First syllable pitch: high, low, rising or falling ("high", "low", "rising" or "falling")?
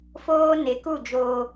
high